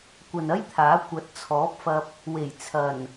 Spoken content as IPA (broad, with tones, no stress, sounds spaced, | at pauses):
kʷ ɐ˨ n ɐ˥ j t̪ʰ aː˨˥ kʷ ɐ˨˥ t̚ t͡sʰ ɔː˨˥ p̚ f ɐ˧ p̚ | w e˨˩ j t͡sʰ ɐ˨˩ n